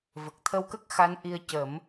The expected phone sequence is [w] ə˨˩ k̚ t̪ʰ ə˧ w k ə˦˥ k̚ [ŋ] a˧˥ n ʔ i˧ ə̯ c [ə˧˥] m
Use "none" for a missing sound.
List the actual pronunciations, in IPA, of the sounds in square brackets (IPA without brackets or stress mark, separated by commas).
v, x, ə˨˩˦